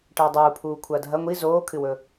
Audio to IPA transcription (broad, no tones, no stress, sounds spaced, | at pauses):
ʈ ɐː dˤ uː pʰ uː kʷʰ ɐː dʱ ɐ ŋʷ i z oː kʰ ɨ w ɵ